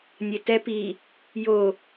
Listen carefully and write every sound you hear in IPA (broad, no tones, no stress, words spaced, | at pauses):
nʲetɛ pi | jo